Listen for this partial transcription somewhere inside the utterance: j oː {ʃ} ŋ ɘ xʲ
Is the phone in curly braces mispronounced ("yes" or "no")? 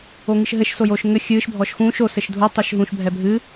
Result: no